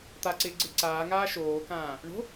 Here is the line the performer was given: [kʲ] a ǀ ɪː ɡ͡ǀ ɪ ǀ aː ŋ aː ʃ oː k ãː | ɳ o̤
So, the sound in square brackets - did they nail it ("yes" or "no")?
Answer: no